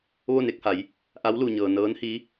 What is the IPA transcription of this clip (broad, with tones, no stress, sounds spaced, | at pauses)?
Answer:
ʋ o˥˨ n e˥˨ k̚ h a˩˧ j | ʔ a˧˥ w l u˩ ɲ ɤː˩ n ɤː˧˥ n h i˧˥